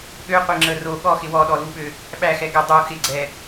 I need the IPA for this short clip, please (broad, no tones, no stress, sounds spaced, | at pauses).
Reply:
ɠ ø qʷ e ŋ͡ǁ ə r o ɠ ɔ x ɪ w ɔ ɗ ɔ l u ɓ ø | ɓ æ x ɛ ɡ ə dˤ u x ɪ ɡ͡ǀ ɛ